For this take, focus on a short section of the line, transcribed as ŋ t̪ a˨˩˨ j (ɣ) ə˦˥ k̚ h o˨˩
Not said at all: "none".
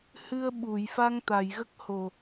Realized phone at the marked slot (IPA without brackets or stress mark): ɣ